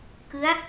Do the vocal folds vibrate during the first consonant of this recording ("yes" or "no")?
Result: no